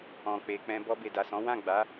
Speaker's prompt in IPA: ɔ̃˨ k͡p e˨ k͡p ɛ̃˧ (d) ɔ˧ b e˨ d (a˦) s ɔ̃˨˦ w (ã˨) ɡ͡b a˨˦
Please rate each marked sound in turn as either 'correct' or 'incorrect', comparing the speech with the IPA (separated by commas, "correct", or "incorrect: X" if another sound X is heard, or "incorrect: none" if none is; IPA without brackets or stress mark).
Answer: incorrect: b, incorrect: a˨, incorrect: ã˦˨